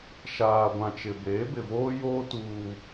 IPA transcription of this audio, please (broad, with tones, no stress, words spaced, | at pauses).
ʃaː˨ɡʷã˨t͡ʃɪ˨beː˨˦ bɪ˨voː˦joː˦ tuː˦